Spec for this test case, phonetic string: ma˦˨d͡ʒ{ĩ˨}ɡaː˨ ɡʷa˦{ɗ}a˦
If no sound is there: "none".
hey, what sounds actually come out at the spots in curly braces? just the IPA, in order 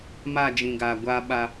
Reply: ĩ˨, ɓ

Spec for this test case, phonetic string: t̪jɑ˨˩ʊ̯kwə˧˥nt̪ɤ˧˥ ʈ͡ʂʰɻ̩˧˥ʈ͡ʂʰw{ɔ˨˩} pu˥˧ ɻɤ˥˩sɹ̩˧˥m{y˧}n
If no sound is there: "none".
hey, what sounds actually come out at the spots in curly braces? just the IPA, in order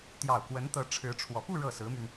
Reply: ɔ˨˩, y˧

